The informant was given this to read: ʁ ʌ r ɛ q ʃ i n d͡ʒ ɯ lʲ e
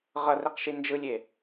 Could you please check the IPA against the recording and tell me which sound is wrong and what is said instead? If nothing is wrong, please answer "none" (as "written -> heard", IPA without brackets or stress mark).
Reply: none